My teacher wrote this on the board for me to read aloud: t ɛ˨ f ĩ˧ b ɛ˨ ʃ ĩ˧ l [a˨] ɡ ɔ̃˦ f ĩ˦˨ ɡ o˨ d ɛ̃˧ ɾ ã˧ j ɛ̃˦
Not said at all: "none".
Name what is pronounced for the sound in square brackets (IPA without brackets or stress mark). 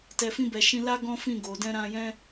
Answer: a˦